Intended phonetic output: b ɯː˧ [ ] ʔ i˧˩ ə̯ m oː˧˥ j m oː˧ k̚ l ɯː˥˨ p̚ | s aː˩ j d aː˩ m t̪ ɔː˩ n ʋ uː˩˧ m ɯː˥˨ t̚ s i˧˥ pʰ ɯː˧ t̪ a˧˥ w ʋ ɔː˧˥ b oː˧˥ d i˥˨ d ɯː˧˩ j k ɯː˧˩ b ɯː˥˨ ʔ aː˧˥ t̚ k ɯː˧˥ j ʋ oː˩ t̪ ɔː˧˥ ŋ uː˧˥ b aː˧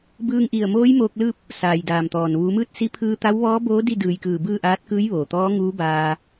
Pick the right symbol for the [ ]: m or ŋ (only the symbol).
ŋ